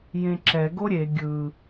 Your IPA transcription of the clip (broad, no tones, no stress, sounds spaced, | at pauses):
j ẽ ǁ ɛ ɡ o ɾʲ e ɡʲ ɯ